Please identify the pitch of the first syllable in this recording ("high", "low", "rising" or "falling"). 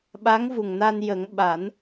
rising